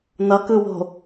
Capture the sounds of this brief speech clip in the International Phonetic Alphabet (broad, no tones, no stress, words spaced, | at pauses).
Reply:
nʌkɯwo̤